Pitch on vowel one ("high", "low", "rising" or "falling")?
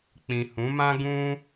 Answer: low